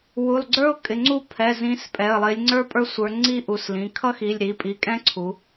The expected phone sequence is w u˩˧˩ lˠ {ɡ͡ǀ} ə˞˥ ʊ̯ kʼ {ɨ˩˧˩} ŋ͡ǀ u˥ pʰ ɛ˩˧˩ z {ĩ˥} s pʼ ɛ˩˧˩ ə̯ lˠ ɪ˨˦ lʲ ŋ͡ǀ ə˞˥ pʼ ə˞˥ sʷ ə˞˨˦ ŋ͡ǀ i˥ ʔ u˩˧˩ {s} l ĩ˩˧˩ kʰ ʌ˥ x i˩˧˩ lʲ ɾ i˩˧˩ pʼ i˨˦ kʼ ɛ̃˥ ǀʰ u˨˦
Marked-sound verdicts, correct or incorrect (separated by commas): correct, incorrect, incorrect, correct